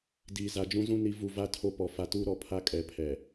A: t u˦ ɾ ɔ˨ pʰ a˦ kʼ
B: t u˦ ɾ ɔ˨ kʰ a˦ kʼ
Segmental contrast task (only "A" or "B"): A